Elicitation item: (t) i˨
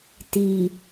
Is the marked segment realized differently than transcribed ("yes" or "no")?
no